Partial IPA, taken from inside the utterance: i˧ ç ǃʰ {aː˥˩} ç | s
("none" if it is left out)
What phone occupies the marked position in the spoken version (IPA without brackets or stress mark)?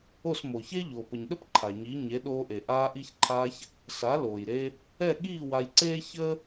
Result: aː˧